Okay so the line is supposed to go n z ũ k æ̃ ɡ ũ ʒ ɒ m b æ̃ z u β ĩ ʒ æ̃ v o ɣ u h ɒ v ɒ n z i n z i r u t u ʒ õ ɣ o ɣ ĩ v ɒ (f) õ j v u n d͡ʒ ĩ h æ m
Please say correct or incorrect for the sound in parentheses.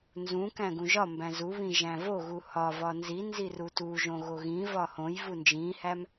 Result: incorrect